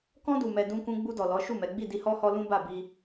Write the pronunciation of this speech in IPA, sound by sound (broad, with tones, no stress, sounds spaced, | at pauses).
k ɔ̃˧ d u˨ m ɛ˨ d ũ˧ k ũ˧ ɡ͡b u˧ d ɔ˨ l ɔ˨˦ ʃ u˦˨ m ɛ˨˦ ɡ͡b i˦˨ d i˧ h ɔ˦ h ɔ˦ l ũ˦ b a˦˨ b i˧